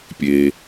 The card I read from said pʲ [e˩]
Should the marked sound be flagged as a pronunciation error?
no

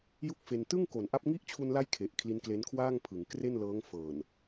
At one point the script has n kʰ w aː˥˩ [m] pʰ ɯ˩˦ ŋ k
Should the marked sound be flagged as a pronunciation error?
yes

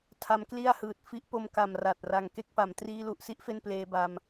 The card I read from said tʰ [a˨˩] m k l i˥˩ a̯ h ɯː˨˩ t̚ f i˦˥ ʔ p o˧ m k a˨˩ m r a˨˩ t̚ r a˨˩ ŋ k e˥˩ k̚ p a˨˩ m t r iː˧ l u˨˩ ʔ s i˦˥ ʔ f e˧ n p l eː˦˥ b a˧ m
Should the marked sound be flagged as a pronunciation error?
yes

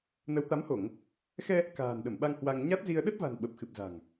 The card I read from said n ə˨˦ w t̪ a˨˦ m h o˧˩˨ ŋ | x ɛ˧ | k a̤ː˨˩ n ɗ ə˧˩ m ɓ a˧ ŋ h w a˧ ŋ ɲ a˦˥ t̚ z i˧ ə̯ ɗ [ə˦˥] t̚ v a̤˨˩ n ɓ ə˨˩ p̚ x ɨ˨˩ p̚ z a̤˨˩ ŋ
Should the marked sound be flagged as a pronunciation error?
no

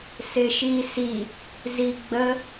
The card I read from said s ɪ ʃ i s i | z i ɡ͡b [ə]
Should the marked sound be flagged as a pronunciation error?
no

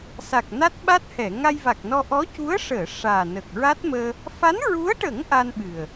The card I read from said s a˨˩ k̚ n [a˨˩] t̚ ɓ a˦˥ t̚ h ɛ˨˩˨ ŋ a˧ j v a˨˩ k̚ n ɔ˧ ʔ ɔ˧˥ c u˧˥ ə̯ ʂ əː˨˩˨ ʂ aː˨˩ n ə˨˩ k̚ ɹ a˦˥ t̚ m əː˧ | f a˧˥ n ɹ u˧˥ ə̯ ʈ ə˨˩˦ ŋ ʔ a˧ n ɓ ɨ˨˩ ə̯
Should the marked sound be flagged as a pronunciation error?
yes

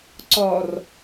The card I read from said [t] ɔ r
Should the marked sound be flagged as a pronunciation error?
yes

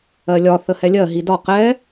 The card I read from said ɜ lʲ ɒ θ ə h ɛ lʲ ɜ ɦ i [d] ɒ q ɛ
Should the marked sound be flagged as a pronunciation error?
no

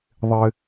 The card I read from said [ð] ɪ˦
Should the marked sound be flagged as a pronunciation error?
yes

